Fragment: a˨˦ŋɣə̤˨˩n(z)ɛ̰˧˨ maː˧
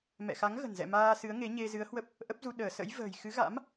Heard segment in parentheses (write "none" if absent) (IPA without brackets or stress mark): z